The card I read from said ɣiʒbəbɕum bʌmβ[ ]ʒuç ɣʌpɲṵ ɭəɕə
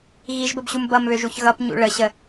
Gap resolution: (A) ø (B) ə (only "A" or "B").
A